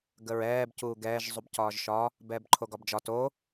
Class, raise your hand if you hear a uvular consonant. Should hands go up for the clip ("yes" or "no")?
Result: no